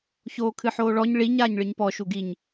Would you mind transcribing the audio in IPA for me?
ç oː kʰ ɨ ħ oː ɭ ɔ ɲ ɭ i ɲ aː ɲ ɭ ɨ ɲ p ɔ ʃ u ɡ i ɲ

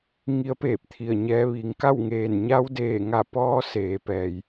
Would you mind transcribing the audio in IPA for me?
ŋ i˧˥ ə̯ p eː˧˩ p̚ t̪ʰ i˧˩ ə̯ ɲ ɛː˧ ʋ i˩˧ ŋ k a˥˨ w ŋ eː˧˩ n ɲ a˧ w d eː˧˩ ŋ a˧˩ p ɔː˧ s eː˩˧ p ɛː˩ j

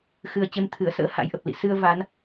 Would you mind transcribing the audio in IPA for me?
x ɨ˨˩ ə̯ t͡ɕ e˧ m t̪ʰ ɨ˧˩ ə̯ s ə̰ː˧˥ h a̰˧˥ j ʔ ə˨˩ p̚ l ḭ˧˨ s ɨ˧ ə̯ v a˨˦ n

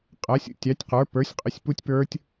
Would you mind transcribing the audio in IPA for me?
qʼ æ˩˥ sʲ ṵ˩˧˩ tʲ ɑ˩˥ tʲ q ə˞˩˥ p ə˞˩˥ sʲ qʼ ɪ˩˥ sʲ p u˦˥ tʲ p ə˞˦˥ tʲ

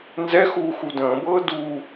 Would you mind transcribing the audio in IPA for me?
n z ɛ x uː x u d ə̃ː b ɤː d uː

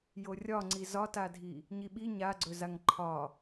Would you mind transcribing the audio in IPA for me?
j o rʲ ɒ ŋ͡ǀ i z ɒ t a dʱ i | ɲ i ɓ i ɲ a ɡ͡ǀ ɵ z a ŋ ǃʰ ɒ

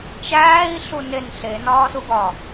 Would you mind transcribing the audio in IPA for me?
t͡ʃ æː i̯ ɬ u n e n ɬ e n ɒː s u ɡ ɒ

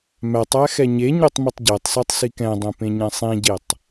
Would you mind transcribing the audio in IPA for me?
m æ tˤ æ x ɛ ɲ e ɲ o tˤ m i tˤ ɟ æ tˤ s æ tˤ s i k ɛ̃ dˤ ɛ̃ p ẽ ɲ ɛ̃ sˤ ĩ ɟ e tˤ

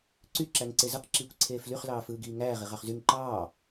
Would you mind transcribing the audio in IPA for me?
ǀ y ǁ æ ŋ ǀ e z ɯ q ǁ iː kʷ ǀʰ eː f l y χ l ɑː f ɯː ɡ iː ŋ æː ʁ i ʁ ɑ χ z y ŋ ǃ ɑː

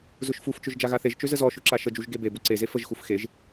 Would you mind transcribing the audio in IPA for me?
z ʊ ʃ f u f t͡ʃ ʊ ʒ d͡ʒ a ɣ a θ e ʒ t͡ʃ ø z ə z ɔ ʃ ʊ ǁ a ʃ ə d͡ʒ u ʒ ɡ e b e b u ǀ e z e f ə ʒ x u f x e ʒ

